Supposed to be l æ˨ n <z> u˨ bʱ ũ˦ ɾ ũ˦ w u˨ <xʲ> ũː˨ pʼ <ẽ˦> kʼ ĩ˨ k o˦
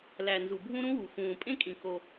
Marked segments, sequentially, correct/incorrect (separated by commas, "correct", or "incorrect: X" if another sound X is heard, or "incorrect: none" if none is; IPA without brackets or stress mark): correct, incorrect: x, correct